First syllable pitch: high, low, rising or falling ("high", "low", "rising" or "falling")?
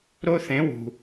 high